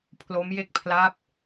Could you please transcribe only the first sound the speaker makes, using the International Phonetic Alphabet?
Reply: pʰ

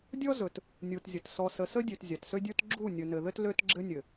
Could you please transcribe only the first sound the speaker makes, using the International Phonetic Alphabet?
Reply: dʲ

